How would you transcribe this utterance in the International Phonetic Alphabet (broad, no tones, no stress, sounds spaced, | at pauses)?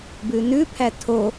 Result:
b ʉ n ʉ pʰ æ tʰ o